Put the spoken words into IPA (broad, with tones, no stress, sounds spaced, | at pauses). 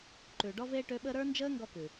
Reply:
ǃ ʉ˨ ɖ ɔ˥ v eː˥ ʈ ø˦ ɓ əː˥ ɾ ə˞˦ n d͡ʒ əː˦ ŋ ɡ ɔ˥ k ʉ˩